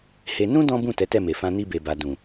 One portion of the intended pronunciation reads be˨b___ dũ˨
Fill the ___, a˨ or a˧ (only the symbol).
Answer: a˨